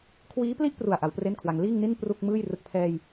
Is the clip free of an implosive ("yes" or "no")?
yes